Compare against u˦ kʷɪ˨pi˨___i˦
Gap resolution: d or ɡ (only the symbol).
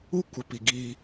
ɡ